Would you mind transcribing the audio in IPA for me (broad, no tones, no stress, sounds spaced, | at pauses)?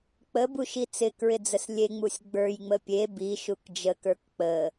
k͡p ə b u ʃ i t͡s ɪ k ɹ ɪ d͡z ə s lʲ e ŋ͡m u sʲ ɡ͡b ə˞ j ŋ͡m ə pʲ e b i ʃ u k d͡ʒ ə k ə˞ k k͡p ə